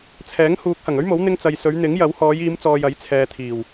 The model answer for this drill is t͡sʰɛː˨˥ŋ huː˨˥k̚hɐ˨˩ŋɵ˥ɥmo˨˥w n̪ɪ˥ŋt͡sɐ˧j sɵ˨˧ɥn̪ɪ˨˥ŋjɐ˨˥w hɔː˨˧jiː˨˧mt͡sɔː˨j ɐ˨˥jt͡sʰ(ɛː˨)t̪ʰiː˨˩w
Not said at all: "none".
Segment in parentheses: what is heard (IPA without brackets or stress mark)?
ɛː˨